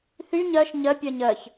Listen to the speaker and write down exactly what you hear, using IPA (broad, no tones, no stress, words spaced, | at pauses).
θy ɲɜʃ ɲɜ pʲɜɲɜç